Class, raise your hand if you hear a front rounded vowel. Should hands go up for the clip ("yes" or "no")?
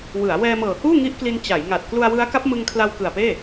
no